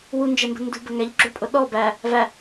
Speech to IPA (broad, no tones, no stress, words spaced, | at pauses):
wund͡ʒɛmbə̤ ndṳbə ŋæʎɡ͡ǁʊɭpʼʊ ɗɔ bæ | væ